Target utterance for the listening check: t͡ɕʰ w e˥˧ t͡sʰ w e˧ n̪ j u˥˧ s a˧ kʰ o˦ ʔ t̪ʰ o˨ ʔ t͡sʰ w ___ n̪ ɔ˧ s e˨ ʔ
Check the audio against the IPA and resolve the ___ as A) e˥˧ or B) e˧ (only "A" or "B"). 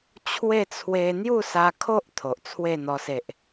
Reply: A